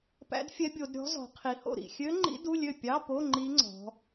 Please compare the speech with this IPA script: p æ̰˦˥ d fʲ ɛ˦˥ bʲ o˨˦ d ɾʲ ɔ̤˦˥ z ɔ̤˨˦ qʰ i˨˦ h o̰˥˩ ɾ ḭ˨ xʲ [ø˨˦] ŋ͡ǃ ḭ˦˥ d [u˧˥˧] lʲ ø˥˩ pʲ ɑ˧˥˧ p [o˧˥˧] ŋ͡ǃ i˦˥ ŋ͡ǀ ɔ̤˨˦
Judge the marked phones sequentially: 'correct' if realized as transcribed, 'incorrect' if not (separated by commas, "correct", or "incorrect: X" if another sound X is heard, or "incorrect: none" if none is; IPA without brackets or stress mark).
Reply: incorrect: ø˦˥, correct, correct